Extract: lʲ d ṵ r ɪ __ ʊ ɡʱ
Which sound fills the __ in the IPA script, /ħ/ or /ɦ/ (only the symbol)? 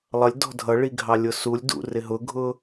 ɦ